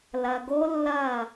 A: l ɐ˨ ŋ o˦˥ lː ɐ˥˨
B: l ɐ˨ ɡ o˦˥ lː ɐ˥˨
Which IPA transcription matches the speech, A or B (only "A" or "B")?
B